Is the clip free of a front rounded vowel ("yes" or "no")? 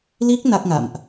yes